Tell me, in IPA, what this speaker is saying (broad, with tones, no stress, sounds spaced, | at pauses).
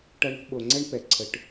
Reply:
ʈ ʌ˦ ɳ o̤˦ ɓ o˨ ŋ͡ǀ ɛ˦ ɳ p ɛ˨ ǀʰ ə˨ ʈ